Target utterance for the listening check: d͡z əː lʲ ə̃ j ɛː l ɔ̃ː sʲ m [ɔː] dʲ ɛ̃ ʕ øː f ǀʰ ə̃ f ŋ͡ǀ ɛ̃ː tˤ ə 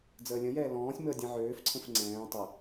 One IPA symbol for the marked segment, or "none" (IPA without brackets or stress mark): əː